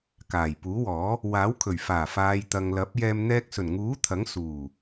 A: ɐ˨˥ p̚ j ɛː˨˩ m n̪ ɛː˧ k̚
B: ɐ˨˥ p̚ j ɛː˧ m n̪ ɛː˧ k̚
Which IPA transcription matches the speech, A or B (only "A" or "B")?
B